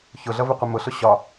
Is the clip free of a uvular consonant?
no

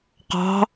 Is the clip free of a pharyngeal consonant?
yes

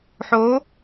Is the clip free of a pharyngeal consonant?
no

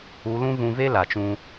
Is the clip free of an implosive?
yes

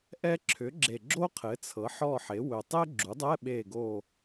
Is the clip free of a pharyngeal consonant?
no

